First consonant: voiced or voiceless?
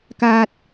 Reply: voiceless